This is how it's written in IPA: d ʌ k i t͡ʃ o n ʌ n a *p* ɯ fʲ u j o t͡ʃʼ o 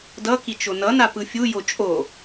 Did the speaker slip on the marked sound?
no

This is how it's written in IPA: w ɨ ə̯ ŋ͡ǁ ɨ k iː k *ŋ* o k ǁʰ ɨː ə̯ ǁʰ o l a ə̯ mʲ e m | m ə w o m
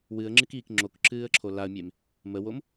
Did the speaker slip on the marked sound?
yes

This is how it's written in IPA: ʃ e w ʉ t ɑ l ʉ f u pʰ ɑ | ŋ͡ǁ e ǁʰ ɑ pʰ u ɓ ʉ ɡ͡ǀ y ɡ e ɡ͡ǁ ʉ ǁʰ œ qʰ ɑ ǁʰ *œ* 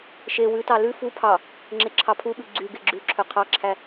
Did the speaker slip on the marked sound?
yes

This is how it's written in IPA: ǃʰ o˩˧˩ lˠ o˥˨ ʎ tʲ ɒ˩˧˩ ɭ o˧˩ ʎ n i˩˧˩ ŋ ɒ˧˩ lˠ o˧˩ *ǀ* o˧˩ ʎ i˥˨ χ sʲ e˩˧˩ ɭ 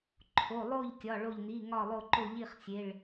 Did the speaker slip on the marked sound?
yes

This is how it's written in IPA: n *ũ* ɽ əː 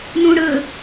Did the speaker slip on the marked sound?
no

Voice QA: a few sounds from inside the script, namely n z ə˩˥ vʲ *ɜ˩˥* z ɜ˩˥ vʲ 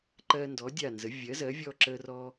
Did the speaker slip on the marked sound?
no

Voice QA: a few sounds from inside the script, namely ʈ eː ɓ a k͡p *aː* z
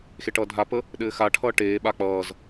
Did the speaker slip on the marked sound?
yes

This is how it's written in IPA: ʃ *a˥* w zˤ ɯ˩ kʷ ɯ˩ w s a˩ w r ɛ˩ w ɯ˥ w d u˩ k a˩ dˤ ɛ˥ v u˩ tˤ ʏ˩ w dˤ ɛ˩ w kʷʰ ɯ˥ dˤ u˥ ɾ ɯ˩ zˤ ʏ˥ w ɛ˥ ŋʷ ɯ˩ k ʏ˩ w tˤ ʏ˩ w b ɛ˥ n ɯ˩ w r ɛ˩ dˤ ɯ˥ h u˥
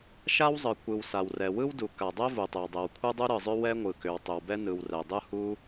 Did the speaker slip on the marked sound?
no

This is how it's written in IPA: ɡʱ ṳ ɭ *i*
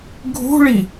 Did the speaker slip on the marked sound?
no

